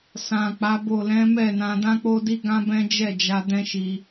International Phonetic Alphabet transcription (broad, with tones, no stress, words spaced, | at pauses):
sã˨k͡pa˨˦bo˦˨ lɛ̃˨˦ mɛ˦˨nã˧ dã˦k͡po˦di˦ ɡã˦bɛ̃˦d͡ʒɛ˦˨ d͡ʒa˧ dɛ̃˦ʃi˧